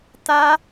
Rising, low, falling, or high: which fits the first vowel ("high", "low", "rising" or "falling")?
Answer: high